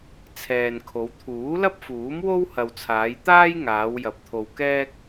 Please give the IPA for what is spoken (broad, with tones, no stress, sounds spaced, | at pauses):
t͡sʰ ɛː˨ n kʰ o˨˧ w t̪ʰ uː˨˥ l ɐ˥ p̚ f uː˨˥ m w o˥ w h ɐ˨ w t͡sʰ aː˨˧ j t̪ aː˥ j ŋ aː˨˧ w j ɐ˨ p̚ t̪ʰ o˧ w k ɛː˥ k̚